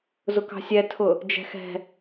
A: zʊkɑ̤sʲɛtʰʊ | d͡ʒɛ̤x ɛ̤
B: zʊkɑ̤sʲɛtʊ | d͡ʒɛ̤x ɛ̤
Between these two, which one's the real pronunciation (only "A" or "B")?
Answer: A